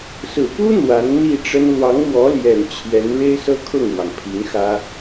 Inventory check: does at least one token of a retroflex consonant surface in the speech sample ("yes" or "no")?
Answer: yes